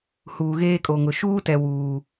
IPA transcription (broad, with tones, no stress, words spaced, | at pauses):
huː˨ɣeː˦kʼo˨ŋʊ˨ ʃuː˦tɛ˨wuː˨